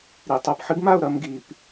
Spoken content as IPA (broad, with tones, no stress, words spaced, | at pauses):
ɾi˨ tˤo˨pħɨ˦ɡma˦˨ʊ̯ ɾɐ˦mɡi˨p